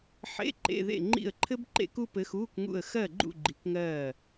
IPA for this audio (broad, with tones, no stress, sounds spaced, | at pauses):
ħ ḛ˧˥˧ ǃ ḛ˧˥˧ ð ḛ˥˨ ŋ͡ǃ ḭ˥˨ ə̯ ǃʰ ɘ˥ b ǃ ḛ˥ k u˥ p ɘ˧˥ x uː˧˥˧ k ŋ ṵ˥˨ ə̯ x ɜ˥˨ ɡ͡ǃ ṵ˥˨ ɡ͡ǃ i˧˥ k ŋ ɜː˥˨